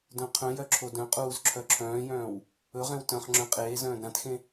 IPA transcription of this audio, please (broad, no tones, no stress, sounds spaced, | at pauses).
d œ̃ qʰ œ̃ j œ ǁʰ o d œ̃ qʼ uː z ǁʰ œ ǁʰ œ̃ː j œ̃ː w | ɵ ʁ ẽ w t œ̃ χ ŋ͡ǁ œ̃ qʼ eː z œ̃ː d ɾ ã t x ẽ